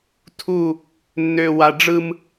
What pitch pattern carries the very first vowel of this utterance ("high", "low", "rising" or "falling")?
falling